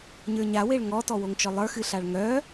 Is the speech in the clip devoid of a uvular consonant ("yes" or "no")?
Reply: yes